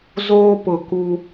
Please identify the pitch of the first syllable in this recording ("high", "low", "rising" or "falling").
high